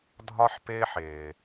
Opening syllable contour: high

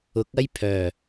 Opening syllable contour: rising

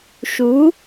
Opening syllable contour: rising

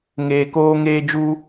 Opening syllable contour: low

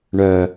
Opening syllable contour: low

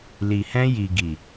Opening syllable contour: low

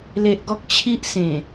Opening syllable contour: low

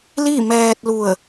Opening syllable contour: falling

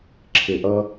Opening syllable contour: low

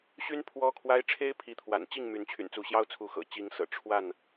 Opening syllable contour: high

